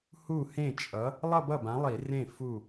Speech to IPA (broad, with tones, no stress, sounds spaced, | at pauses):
h u˥˩ h ẽ˥˩ t͡ʃʼ ʌ˨˥ | lˠ ʌ˥˧ b ʌ˥˩ b ã˨˥ lˠ i˧˩˧ r ẽ˥˩ f u˧˩